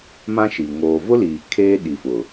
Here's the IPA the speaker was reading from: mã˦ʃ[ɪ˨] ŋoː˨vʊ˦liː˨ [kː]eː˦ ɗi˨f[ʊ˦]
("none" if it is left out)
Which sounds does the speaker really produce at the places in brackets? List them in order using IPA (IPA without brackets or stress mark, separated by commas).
i˨, kʰ, ʊ˨